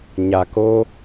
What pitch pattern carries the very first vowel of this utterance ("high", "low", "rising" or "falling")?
low